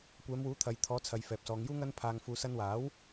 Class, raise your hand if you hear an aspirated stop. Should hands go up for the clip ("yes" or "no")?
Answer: yes